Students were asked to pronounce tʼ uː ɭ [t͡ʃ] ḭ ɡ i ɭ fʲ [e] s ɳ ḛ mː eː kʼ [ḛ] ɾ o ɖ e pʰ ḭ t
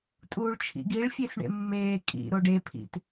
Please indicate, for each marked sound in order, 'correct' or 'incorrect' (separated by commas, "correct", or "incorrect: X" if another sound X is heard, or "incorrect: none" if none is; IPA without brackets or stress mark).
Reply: incorrect: t͡ʃʰ, correct, incorrect: ḭ